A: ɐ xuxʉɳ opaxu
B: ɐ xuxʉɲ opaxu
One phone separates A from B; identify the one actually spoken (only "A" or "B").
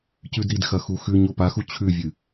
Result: B